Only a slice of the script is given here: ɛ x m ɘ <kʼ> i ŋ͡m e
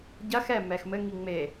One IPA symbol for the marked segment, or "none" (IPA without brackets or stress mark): ŋ